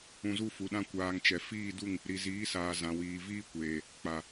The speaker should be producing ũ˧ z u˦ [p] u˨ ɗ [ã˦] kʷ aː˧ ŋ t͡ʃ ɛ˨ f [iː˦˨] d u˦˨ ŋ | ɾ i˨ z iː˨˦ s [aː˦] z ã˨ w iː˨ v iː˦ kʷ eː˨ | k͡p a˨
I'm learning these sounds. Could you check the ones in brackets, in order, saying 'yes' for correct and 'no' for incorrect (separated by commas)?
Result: no, yes, yes, no